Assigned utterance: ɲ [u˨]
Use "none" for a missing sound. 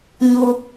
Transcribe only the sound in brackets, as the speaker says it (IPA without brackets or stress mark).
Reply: u˨